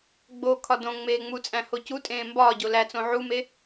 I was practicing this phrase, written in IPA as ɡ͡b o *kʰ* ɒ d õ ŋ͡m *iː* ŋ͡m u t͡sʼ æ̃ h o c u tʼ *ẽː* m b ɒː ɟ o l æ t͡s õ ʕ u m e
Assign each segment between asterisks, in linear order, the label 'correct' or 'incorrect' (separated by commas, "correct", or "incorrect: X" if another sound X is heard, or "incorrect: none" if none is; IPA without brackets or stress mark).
correct, incorrect: eː, correct